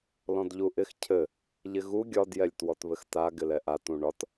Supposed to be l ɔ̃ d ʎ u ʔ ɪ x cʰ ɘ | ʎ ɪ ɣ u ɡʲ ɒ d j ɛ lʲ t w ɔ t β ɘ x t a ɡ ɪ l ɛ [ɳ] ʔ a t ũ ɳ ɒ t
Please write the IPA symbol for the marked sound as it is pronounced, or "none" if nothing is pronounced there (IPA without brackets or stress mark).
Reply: none